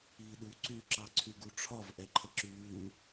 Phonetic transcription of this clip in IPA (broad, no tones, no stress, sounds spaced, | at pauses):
iː ɗ u ǀ y ǁ ɑ ǀʰ y ɡ u ʈ͡ʂʰ ɒ v ʔ ɛ ǃʰ ə ǁ ʉː